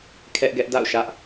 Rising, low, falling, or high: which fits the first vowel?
high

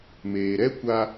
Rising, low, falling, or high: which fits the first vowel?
low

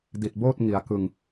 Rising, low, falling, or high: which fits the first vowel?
low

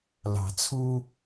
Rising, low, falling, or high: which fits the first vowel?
low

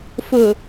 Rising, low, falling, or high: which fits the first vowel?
low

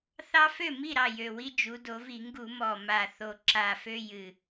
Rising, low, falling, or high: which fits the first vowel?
high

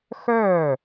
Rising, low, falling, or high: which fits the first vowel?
falling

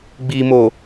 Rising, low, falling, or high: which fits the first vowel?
low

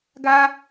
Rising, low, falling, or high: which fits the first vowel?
high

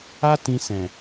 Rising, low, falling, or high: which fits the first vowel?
high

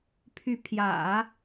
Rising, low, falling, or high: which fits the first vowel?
rising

